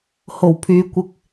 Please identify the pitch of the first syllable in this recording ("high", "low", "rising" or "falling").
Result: low